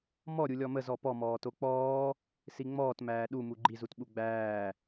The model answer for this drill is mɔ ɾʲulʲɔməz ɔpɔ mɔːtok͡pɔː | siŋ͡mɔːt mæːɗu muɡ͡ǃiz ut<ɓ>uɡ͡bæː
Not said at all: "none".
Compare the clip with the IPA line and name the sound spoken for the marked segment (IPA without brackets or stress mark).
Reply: ɓ